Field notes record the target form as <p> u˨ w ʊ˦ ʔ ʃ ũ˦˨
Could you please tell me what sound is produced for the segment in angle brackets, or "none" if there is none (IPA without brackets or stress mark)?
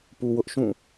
p